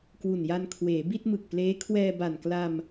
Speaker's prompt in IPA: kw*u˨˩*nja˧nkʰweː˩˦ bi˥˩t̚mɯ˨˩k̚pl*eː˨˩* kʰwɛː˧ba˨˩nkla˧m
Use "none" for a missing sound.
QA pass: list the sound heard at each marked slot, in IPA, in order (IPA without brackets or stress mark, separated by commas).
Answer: u˨˩, eː˦˥